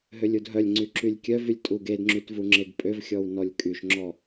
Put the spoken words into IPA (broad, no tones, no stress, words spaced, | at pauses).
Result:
ɦølʲudɦœlʲŋ͡ǀy ǁylʲkʲœvylʲ tʼuɡedŋ͡ǁyt vuŋ͡ǁeɡpʼøvxʲɔw nɔlʲkʼyʃŋ͡ǁɔ